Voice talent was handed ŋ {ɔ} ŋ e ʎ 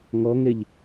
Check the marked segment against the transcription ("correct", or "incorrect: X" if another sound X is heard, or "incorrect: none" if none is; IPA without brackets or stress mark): correct